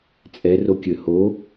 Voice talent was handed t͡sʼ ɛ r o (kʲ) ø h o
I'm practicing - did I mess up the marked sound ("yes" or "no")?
no